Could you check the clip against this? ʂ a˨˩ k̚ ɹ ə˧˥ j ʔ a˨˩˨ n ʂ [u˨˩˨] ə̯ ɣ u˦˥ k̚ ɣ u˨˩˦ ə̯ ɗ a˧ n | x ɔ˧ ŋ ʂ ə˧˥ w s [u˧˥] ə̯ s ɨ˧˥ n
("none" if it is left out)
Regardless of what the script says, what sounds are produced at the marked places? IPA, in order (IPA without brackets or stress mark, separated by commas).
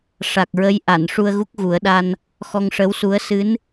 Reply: u˧, u˧˥